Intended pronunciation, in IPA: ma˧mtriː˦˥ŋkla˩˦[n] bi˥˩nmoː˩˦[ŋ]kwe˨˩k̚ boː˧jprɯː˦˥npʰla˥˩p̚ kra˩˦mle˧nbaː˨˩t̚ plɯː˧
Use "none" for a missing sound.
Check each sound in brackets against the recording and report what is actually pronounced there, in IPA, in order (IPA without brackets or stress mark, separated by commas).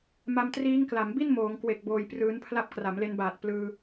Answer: m, ŋ